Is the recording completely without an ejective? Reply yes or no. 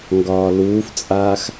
no